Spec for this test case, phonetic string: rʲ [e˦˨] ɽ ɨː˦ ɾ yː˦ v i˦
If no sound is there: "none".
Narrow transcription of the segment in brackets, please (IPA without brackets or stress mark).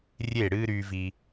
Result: e˦˨